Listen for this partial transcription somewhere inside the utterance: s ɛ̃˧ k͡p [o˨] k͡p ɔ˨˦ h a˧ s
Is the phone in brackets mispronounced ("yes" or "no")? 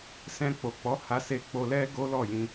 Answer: no